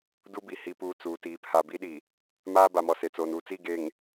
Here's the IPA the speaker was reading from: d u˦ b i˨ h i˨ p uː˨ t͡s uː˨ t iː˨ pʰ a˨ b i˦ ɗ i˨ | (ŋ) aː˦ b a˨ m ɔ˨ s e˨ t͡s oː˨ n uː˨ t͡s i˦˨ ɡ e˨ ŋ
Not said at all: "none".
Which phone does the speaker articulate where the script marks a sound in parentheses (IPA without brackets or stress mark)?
m